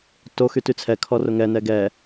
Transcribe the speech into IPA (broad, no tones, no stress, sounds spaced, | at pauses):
t o x y t y t͡sʰ ɛ kʰ ɔ r ʊ ŋ ɛ n ɛ ɡ ɛ